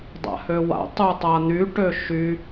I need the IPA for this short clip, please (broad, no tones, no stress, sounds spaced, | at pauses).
dˤ a̰ h ø w a̰ tˤ u tˤ a n̪ y ʈ ø ʃ y